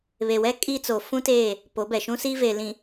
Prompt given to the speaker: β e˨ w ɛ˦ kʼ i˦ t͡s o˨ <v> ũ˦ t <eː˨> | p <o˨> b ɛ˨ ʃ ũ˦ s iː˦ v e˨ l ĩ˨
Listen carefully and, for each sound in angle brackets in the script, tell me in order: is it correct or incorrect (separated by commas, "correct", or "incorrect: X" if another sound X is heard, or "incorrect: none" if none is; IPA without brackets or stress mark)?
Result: incorrect: f, incorrect: eː˦˨, incorrect: o˨˦